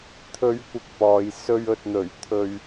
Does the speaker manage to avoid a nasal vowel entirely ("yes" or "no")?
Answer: yes